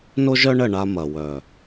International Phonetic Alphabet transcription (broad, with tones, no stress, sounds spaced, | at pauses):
n o˦ ʒ œ˦ ɳ ə˦˨ ɳ a˦ m ɐ˨ w œ˨